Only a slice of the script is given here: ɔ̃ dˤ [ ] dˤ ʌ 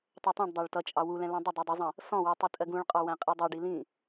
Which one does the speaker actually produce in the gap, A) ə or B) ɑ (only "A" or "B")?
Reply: A